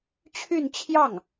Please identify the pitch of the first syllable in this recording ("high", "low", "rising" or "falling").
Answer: falling